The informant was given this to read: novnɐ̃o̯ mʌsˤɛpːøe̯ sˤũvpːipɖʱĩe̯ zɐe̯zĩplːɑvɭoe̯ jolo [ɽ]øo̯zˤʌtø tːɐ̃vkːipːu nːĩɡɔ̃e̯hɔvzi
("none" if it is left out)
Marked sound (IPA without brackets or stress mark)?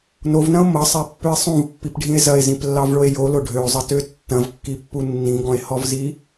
ɖʱ